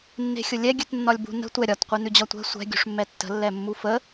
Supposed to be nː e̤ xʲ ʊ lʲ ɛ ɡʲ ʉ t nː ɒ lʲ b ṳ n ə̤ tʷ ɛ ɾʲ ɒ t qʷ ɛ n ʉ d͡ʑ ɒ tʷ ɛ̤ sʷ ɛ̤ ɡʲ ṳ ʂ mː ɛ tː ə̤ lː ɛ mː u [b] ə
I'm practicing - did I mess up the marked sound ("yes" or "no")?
yes